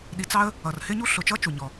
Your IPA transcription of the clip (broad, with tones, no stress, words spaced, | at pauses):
ɗi˨t͡sɑ˦ə̯ | ʌ˨rhɪ˥ɲu˥ ɬʊ˨t͡ʃʌ˥ t͡ʃu˨ɲɔ˨